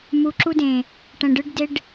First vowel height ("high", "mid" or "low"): high